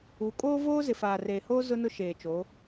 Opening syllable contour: rising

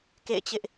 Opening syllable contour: falling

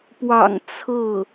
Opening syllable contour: low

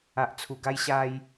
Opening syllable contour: low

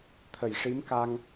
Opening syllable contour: low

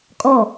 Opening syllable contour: falling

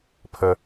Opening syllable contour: low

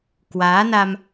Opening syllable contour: rising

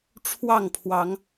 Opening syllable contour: falling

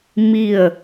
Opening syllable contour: falling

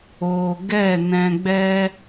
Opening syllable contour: low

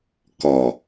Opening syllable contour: low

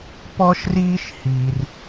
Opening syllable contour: high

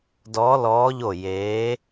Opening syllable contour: rising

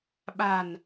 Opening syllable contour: low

